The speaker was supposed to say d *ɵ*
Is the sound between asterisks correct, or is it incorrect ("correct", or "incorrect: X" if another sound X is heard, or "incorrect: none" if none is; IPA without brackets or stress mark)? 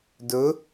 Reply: correct